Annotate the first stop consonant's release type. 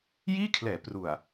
aspirated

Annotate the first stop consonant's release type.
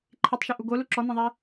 click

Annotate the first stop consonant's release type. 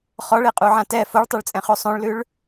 ejective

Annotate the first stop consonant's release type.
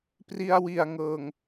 plain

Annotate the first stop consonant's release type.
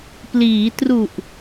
plain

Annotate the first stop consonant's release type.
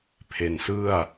aspirated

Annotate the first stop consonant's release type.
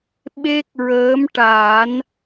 implosive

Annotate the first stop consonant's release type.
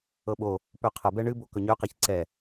implosive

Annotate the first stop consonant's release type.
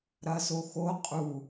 ejective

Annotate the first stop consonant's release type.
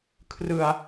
aspirated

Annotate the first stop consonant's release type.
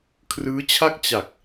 aspirated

